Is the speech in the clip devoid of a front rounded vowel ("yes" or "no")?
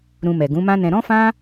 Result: yes